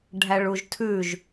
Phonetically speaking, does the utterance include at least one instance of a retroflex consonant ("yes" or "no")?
yes